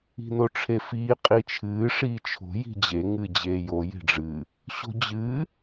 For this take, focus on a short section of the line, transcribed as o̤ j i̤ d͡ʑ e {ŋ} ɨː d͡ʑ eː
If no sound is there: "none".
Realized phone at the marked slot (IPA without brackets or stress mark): ŋ